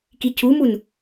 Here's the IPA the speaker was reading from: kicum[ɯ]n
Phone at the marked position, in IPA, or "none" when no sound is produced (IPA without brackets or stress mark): u